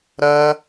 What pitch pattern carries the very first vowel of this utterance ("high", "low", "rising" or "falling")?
high